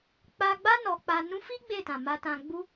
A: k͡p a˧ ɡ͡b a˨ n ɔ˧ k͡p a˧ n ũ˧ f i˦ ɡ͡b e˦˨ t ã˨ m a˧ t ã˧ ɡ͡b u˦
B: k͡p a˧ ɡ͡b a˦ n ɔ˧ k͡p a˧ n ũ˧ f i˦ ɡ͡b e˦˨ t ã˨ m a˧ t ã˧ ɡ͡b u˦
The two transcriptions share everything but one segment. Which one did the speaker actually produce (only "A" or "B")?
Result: B